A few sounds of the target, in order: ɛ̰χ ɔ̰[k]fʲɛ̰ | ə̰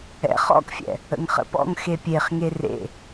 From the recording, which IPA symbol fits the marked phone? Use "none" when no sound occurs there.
k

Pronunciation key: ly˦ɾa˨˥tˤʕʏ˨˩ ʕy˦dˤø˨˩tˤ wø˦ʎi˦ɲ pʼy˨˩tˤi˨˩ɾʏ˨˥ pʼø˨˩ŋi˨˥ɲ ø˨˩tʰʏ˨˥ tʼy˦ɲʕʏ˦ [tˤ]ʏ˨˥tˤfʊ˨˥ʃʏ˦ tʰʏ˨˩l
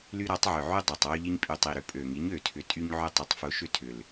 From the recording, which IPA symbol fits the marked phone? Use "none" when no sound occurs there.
tˤ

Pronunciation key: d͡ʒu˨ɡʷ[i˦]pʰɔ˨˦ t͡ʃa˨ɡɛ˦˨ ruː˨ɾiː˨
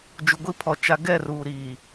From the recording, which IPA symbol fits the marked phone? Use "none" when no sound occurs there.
i˦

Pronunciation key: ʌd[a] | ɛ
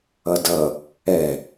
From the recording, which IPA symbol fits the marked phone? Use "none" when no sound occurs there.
ʌ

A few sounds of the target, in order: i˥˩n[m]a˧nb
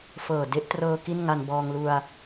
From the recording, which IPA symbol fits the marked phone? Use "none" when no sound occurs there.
ŋ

